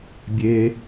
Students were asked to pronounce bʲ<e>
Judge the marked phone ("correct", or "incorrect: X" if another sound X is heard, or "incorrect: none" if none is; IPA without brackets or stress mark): correct